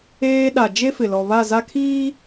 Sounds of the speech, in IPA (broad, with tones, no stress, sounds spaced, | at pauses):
eː˦ ɗ a˨ d͡ʒ e˦ f ɪ˨ l ɔ˨ β a˦˨ z a˦ kʰ iː˦